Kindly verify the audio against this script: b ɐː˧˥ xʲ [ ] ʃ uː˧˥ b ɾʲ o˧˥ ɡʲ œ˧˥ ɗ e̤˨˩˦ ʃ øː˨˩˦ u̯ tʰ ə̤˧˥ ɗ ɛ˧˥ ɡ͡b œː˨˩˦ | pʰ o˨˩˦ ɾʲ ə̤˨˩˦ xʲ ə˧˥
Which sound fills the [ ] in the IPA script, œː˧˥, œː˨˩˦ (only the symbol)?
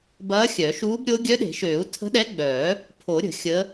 œː˨˩˦